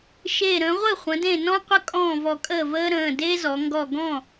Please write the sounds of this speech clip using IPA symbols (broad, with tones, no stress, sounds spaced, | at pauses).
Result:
ʃ e˧˩ ɾ ə̃ː˩˧ ʁʷ ɘ˥˩ χʷ ə̃˩˧ d ẽ˧˩ n ɔ̃˥ qʷ ə˥ kʼ ɔ̃ː˥˩ v ɔ˧˩ kʼ əː˥˩ v əː˥ ɾ ə̃ː˩˧˩ d eː˥ z ɔ˩˧ ŋ ɡ ɔ˧˩ ɡ ɔ̃˥˩